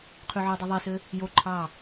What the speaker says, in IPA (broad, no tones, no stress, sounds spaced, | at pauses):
qʰ y ʕ ø dˤ i ðˤ e s ø | j o ǃʰ ɑ